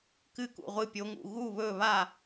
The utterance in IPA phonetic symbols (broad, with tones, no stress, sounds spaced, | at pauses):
k ɨ˥˩ k ṵ˧˩ ʁʷ ɨ˧˩ pʲ o˨˦ ŋ ṵ˧˩ ɣ u˥˩ β ɵː˥˩ β a˥˩